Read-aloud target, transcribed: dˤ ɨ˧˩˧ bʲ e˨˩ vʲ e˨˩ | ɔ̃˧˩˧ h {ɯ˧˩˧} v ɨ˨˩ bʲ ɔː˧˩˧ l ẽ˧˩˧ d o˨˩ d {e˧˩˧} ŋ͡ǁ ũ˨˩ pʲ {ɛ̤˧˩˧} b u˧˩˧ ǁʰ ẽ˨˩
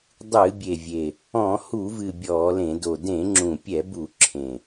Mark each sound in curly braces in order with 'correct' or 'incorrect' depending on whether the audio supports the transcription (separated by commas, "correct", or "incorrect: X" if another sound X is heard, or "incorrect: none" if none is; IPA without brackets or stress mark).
incorrect: u˧˩˧, incorrect: ẽ˧˩˧, incorrect: ɛ˧˩˧